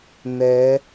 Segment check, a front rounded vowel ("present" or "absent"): absent